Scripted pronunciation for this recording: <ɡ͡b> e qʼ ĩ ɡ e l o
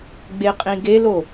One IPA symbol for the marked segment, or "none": ɡ͡b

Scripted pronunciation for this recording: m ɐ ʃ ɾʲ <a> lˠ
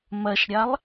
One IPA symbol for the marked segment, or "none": a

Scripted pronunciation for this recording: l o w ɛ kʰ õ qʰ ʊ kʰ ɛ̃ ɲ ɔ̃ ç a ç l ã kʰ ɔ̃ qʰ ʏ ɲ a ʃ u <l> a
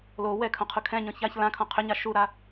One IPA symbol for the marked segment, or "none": ɾ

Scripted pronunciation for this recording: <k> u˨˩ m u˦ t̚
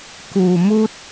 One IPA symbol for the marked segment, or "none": k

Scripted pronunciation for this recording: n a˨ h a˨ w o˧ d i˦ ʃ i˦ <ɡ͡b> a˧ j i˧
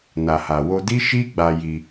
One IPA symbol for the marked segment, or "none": ɡ͡b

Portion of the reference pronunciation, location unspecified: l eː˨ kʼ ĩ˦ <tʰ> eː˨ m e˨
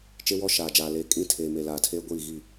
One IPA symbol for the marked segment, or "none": tʰ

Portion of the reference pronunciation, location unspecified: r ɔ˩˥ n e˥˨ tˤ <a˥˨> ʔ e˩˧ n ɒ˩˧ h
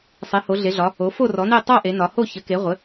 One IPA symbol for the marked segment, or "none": a˥˨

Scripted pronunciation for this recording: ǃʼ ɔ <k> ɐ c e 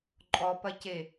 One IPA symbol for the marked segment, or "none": p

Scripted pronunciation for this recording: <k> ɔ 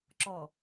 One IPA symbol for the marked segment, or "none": ǁ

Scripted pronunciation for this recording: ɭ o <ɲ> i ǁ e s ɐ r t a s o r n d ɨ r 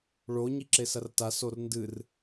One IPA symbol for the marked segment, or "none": ɲ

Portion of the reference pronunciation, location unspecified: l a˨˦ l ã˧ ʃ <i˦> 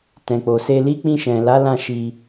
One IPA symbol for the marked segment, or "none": i˧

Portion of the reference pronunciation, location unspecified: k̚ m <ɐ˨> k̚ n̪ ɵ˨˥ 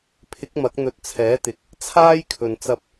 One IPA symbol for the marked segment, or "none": ɐ˨˥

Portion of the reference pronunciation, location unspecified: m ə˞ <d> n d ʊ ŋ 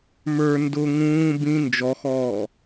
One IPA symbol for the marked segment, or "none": none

